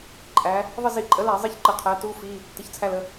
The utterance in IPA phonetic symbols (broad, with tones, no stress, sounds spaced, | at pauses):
ǃʼ æ˩˧ | ðˤ ə˦˨ z i˧˩˧ ǃʼ ə˩˥ l æ˧˩˧ zˤ i˦˨ ç ǃ ə˧˩˧ qʰ æ˩˥ t u˧˥˧ f i˧˥˧ | t ə˩˥ ç t͡sʰ æ˦˨ l ə˦˨